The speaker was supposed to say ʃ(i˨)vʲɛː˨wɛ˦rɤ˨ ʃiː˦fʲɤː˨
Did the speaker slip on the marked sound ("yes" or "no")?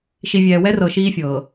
no